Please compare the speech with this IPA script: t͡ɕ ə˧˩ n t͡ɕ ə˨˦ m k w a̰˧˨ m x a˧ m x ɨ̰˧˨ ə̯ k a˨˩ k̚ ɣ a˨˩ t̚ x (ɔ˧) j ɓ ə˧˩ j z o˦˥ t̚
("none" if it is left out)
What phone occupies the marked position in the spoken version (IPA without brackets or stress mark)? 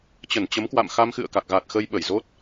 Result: ə˧